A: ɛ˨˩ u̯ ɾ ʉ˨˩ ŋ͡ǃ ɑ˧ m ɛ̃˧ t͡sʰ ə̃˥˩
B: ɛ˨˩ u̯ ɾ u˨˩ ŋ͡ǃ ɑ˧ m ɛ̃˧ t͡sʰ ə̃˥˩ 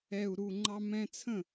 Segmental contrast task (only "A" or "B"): B